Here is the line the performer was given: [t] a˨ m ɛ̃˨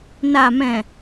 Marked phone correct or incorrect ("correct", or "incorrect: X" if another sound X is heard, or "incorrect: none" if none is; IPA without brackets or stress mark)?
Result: incorrect: n